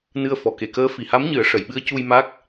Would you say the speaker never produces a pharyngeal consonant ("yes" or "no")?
yes